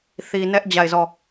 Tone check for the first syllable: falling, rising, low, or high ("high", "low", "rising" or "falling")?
low